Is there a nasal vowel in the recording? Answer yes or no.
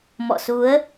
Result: no